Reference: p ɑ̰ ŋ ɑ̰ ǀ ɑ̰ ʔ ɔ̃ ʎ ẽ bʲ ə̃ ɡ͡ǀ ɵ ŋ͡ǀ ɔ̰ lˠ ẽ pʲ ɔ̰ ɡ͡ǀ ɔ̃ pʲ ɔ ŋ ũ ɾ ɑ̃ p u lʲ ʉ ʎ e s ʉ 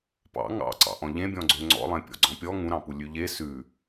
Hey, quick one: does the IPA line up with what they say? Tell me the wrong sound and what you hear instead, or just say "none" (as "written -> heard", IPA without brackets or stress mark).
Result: ə̃ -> ɔ̃